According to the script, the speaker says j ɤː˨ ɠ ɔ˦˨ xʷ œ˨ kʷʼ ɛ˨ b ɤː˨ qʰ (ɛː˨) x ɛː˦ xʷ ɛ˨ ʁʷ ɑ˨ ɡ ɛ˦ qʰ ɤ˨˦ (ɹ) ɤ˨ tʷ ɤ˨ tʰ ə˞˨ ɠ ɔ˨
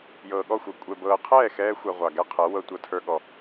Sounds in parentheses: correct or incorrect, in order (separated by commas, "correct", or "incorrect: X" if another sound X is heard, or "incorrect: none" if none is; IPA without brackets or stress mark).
incorrect: ɛː˦˨, incorrect: w